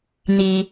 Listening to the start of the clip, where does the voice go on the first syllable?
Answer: high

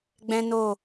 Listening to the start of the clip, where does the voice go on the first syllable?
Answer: high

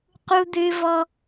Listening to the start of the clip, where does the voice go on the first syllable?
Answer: high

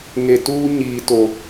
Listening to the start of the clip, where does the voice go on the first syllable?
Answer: low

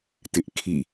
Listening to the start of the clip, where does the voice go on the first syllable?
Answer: high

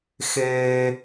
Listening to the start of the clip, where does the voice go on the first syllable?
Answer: high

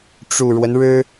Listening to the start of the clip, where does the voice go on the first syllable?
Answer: low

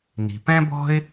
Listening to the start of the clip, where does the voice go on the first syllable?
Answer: low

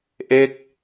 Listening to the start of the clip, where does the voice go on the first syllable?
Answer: falling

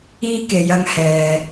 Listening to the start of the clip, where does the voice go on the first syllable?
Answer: high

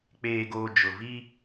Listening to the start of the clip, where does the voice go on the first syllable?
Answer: low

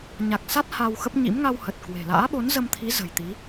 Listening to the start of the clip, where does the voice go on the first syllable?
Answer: low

